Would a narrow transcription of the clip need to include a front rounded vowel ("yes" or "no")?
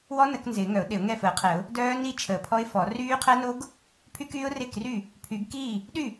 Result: yes